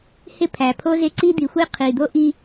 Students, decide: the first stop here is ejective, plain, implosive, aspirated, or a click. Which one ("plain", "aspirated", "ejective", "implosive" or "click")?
aspirated